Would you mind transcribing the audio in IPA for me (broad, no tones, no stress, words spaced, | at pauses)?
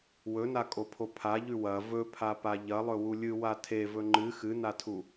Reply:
wɵnakʼopʰo pʰaʎʉ wɐ vɵpʰapa ʎɐlˠɵwu lʲɨwa tʰevɵ ŋ͡ǃɨ xɨnatʰu